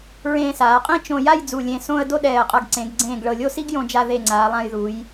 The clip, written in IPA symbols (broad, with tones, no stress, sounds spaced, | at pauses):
ɹ ẽː˧ s aː˩˧ qʼ ĩ˥˧ t͡ʃ õ˧ j a˥˧ j d͡z u˧˩ lʲ ẽ˧ s õ˧ ə̯ d o˥ ɗ ɛː˧˩ ə̯ qʼ ɤ˧ ɡ ǀ ẽ˩˧ ɡ ɡ͡ǀ ẽː˧˩ ɡ ɭ ɤ˧˩ lʲ o˥˧ s i˥ ɡ j õ˧ d͡ʒ a˧ ð e˧˩ ŋ͡ǀ aː˩˧ lˠ ã˧ j ð u˩˧ j